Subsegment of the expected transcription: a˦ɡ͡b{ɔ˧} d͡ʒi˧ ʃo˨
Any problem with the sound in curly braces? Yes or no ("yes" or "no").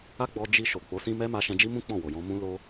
no